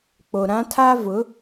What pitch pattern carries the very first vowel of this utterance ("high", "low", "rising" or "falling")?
low